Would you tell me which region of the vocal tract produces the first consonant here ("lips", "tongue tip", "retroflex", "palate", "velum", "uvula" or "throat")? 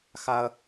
velum